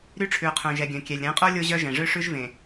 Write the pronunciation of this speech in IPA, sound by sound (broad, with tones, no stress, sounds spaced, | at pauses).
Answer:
ɾ y˦ ʈ͡ʂʰ ʉ˨ ʊ̯ qʰ œ̃˨ ʒ ɛ˨ ɡʲ œ̃˨ kʲ ɛ˨ lʲ ɾ ɛ̃˨˦ qʼ o˦ lʲ o˦ ʑ œ˦ ʒ ɛ̃˨ ʐ ø˦ ʂ ʉ˦ ʒ v ẽ˨